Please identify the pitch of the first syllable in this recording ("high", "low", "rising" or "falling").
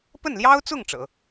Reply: falling